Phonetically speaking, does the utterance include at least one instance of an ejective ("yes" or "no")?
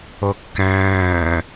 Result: no